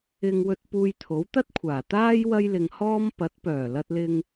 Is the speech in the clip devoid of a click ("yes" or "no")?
yes